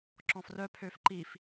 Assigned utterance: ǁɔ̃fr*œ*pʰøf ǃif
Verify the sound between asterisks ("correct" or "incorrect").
correct